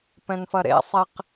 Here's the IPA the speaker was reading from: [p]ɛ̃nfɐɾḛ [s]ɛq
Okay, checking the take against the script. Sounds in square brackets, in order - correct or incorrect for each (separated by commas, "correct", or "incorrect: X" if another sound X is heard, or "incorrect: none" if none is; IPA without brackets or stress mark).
correct, incorrect: sˤ